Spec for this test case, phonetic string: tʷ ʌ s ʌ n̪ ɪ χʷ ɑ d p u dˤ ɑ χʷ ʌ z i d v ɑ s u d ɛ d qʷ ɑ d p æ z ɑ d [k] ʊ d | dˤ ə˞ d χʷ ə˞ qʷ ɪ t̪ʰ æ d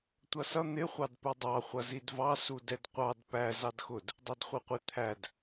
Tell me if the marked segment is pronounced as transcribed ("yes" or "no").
no